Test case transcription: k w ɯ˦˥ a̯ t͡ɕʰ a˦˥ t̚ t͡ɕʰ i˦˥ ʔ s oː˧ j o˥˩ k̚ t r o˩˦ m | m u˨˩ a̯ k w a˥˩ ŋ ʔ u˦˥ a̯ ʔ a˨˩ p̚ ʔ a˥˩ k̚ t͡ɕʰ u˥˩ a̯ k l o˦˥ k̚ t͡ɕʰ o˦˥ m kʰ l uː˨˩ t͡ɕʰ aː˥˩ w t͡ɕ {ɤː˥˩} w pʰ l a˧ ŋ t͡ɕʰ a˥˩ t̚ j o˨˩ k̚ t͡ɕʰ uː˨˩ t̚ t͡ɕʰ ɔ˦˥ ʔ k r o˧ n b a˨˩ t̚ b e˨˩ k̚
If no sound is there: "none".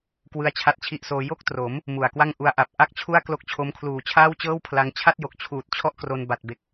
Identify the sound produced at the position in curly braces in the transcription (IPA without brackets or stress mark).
ɤː˥˩